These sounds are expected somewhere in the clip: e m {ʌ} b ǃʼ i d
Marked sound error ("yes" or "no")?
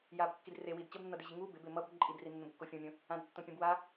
no